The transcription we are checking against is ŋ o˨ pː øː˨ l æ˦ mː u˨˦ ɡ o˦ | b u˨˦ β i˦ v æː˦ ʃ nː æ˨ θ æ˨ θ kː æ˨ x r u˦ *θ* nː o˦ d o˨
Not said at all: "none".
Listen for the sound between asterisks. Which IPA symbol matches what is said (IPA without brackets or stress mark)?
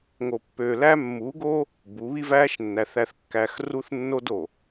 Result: θ